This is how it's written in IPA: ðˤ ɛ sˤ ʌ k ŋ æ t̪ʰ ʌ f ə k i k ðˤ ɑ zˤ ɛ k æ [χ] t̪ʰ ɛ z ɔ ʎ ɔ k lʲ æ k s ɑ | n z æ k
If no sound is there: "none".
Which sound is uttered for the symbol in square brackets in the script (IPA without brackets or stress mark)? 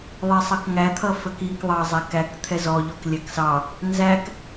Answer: k